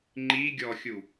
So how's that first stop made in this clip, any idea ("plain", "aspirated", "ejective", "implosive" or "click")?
click